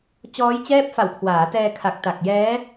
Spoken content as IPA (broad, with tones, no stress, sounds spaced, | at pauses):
t͡ɕ ɔː˦˥ j t͡ɕ ɛː˥˩ p̚ f a˨˩ w kʰ w aː˩˦ t ɛː˧ kʰ a˨˩ k̚ t a˨˩ k̚ j ɛː˦˥